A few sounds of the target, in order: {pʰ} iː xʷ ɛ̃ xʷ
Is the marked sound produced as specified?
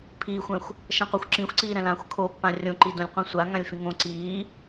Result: yes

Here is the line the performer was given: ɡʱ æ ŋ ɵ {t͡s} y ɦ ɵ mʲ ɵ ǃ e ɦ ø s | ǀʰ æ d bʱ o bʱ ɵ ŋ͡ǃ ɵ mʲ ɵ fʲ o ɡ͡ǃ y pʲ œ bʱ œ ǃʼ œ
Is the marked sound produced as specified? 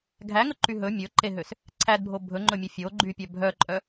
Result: no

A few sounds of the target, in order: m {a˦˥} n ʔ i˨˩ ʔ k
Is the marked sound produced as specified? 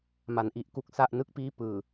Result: no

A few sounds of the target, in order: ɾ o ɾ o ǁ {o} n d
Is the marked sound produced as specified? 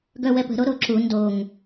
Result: no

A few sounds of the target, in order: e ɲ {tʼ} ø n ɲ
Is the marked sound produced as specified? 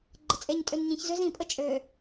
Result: yes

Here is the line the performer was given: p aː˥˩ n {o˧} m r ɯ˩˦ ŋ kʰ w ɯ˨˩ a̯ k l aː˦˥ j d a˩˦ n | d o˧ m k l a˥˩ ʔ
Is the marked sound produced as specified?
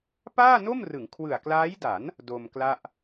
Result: no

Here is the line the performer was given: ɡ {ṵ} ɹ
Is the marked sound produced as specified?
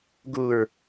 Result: no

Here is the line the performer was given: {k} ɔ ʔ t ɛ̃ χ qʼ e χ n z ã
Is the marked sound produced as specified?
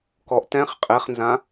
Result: yes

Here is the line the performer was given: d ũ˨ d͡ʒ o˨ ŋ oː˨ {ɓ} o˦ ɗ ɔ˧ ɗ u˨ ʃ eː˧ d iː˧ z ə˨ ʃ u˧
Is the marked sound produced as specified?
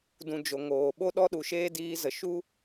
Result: yes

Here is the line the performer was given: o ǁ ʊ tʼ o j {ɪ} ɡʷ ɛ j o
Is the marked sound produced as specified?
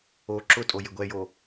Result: yes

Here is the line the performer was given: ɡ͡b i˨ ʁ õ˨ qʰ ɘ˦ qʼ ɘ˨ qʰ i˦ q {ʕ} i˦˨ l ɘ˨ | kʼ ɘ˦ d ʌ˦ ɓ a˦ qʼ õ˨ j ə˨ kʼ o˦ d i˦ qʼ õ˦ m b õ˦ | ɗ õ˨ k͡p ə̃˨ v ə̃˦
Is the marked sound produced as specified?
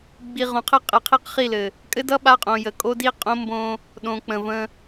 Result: no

